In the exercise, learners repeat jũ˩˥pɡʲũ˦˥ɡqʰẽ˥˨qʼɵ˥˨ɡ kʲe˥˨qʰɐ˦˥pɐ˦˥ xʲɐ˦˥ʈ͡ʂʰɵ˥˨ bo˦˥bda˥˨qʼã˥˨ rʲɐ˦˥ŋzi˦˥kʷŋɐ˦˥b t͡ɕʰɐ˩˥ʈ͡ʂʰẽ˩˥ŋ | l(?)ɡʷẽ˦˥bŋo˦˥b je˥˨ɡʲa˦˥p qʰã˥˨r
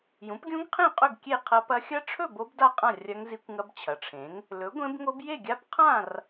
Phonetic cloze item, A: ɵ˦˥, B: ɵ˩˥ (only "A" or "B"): B